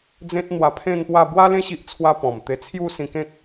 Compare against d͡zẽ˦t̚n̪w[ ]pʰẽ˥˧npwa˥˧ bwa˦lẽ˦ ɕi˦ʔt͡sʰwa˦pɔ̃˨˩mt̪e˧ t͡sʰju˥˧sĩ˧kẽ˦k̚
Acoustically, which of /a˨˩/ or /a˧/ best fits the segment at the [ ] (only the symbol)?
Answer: a˧